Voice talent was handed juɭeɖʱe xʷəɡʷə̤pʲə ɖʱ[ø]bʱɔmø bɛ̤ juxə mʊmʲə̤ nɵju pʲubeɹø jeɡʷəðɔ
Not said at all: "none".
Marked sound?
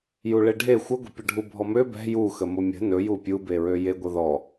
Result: u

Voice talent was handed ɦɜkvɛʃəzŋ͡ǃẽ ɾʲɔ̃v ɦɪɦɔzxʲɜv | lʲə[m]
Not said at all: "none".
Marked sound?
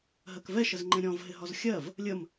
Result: m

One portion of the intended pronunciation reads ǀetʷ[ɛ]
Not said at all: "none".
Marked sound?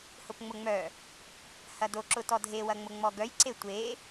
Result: e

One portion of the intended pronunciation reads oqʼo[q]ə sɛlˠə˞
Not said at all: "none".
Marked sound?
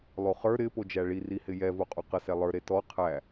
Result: q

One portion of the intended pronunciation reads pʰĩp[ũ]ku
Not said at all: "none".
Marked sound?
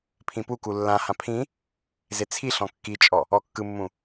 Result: u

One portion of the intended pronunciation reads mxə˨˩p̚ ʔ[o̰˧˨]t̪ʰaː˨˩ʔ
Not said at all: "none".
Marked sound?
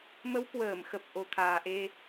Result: o˨˩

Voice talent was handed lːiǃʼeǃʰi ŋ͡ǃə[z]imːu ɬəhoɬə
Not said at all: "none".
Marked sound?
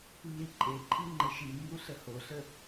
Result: ʃ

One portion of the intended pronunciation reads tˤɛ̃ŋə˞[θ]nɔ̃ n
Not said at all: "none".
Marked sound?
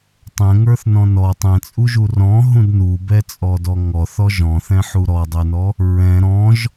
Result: θ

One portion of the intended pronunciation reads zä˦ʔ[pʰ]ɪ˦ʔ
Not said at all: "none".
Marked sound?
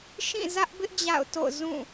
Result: b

